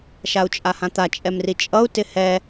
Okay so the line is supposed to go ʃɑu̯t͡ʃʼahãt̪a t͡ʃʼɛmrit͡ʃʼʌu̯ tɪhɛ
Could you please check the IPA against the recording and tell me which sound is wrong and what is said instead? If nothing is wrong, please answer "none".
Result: ɑ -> a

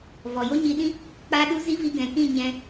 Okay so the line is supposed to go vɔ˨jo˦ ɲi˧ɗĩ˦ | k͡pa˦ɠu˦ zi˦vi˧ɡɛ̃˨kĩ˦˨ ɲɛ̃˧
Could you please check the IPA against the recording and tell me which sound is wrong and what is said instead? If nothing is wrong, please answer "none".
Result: ɠ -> ɗ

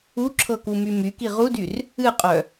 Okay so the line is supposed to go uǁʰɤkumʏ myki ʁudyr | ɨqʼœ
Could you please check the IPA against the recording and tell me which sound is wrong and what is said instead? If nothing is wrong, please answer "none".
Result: ʏ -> y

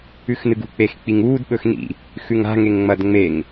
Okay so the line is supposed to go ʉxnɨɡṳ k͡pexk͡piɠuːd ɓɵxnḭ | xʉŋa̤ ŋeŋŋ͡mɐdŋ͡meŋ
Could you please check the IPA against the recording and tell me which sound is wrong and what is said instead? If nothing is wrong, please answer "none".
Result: ɠ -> ŋ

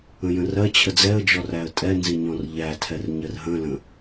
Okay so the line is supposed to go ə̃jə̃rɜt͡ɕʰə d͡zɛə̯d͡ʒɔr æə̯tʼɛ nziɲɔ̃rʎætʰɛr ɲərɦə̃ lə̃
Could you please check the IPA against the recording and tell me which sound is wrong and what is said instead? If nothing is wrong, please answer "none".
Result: none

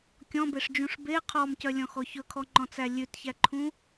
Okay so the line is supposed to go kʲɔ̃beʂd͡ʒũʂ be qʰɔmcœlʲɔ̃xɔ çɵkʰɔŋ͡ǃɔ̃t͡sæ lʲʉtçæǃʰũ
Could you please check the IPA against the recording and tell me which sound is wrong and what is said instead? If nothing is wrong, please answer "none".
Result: none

